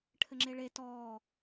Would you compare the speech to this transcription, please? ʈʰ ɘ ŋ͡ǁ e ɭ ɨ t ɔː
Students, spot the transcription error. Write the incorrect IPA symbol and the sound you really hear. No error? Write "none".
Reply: ɨ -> e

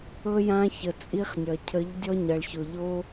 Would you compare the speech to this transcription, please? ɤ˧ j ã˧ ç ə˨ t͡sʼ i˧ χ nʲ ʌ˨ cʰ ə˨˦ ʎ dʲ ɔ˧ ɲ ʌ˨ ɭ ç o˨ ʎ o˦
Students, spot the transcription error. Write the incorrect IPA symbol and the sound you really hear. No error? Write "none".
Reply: none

